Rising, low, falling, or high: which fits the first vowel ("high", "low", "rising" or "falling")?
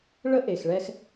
high